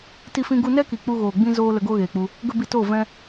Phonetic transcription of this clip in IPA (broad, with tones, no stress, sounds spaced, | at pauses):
t i˧ f ĩ˧ ɡ u˧ n ɛ˦ k i˨ k͡p u˧ ɣ oː˨ ɡ͡b ĩ˦ z oː˦ l ə˧ ɡ o˦ ɣ eː˨ k͡p u˧ | ɡ ə˦ b i˧ t oː˦˨ v ɛ̃˦